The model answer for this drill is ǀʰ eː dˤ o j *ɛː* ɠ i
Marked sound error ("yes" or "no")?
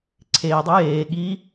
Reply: yes